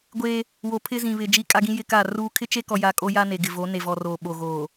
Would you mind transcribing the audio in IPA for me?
ɡʷ eː˦ | w o˨ pʰ ɪ˦ z ĩ˨ β ɪ˨ d͡ʒ i˦ kʼ a˦ ɡ ĩ˦ j ɪ˦ k a˦˨ r uː˦ kʰ ɪ˦ t͡ʃ e˦ k ɔ˨ j a˨ kʼ o˦ j a˦ n e˨ ɡ ɪ˨ v o˨˦ n e˨ v ɔ˨ r oː˨ ɓ o˨ ɣ oː˨

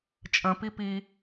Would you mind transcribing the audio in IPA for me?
t͡ʃʼ ə̃ p i p i

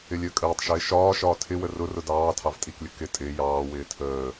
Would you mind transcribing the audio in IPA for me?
ɪ lʲ əː kʼ əː tˤ ʃ ɪː ʃ ɒː ʃ ɒː tʰ ɪ w ə r ʊ r ʊ d ɑː tʰ ɑ v tʼ i k lʲ ʊ k ɪ tʼ ɪː j ɑː w ɪː tʰ əː

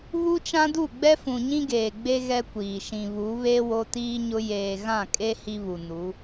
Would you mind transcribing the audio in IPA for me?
β u˦ t͡ʃ ã˦ d u˦˨ ɡ͡b ɛ˦ f ũ˨ ɲ ĩ˦ ɡ eː˨ ɡ͡b e˦ ɣ ɛ˦ kʷ iː˨ ʃ ĩ˨ β u˨˦ β e˦ w o˦ t iː˦ ɲ ʊ˦ j eː˨ ɣ ã˦˨ kʼ e˦ h i˦ β u˨ n u˨˦

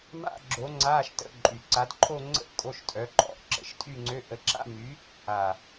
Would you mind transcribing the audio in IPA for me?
m a̰˥˧ ɡ͡ǁ o˨˥ ŋ͡ǀ aː˧˥˧ ʃ t ə̰˧˥˧ ǃʼ y˨˩ ǀ a˨˥ d ǃʰ o˥˧ ŋ͡ǀ ə̰˥˧ ʔ kʼ o˧˥˧ ʃ tʼ œ˨˥ ǃʼ ɔ̰˨˥ ʔ ǁ ə̰˨˥ ʃ tʼ y˥˧ ŋ͡ǀ ø˧˥˧ ʔ ə˨˥ ǁ a̰˥˧ m y˨˥ | a˨˩

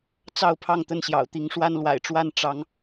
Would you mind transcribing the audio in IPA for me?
t͡s ɑ˥˨ ʊ̯ pʰ ɑ˥˨ ŋ t̪ ə˥˨ n ɕ j ɑ̰˨˩ ʊ̯ t̪ i˨˦ ŋ ʂ w a˦ n l w a̰˨˩ ɪ̯ ʈ͡ʂ w a˥˨ n ʈ͡ʂ ɑ˨˦ ŋ

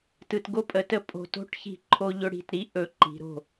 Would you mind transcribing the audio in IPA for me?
t ɯ˨ t ɡ o˦ pʼ ə˨ t ə˦ pʼ o̤˨ t o̤˦ ʈ ç i̤˦˨ ǃʰ o˦ ʎ ɵ˦ ɽ i̤˨ t ɾ i˦ ʔ ɵ˦˨ ǃ i̤˨˦ ɾ o̤˦˨

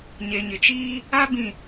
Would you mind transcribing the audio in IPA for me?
ɲ e˨ ɲ ɪ˨ t͡ʃ iː˦ | a˦ b ĩ˨

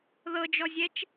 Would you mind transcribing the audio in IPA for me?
ð ɤ d͡ʒ ɔ zʲ ɛ t͡ʃ

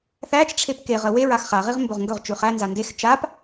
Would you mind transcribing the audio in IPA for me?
θ æ t͡ʃ ʈ͡ʂʰ e p k e ʁ ə w e ɹ a x χ a ʁ i ʁ m b ɵ ʁ ŋ ɡ ɵ ʁ t͡ʃ ʉ χ æ n z a n d e x t͡ʃ a p

